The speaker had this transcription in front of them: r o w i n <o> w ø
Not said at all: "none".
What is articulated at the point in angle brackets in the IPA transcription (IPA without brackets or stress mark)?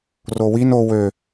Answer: o